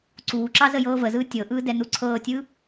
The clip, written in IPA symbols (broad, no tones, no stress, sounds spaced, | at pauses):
ǀ uː ǁ ɑ z ə j ɤː v ə z ɯː tʲ ɤ ʔ ɯː d ɛ n u ǀʰ ɤː tʲ ɯː